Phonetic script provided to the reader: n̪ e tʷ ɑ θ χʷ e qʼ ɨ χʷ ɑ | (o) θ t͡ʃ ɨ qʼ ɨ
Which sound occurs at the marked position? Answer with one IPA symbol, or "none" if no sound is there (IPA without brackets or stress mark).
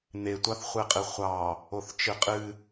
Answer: o